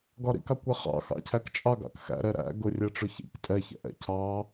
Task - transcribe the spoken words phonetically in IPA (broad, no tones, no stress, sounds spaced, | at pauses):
ɡ ɒ ɾ ḭ k ɑ kʷ ɛ χ ɑ̰ x ɑ̰ cʰ æ k t͡ʃʼ ɑ ɡ ɑ̰ k x æ̰ ɾ ɛ ɾ æ̰ ɡ ʊ rʲ ɛ ʈ͡ʂ ʊ ç ḭ k tʼ ɛ ç ɛ̰ ʔ ɛ̰ cʰ ɑ